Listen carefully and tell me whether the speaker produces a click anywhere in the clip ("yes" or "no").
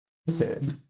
no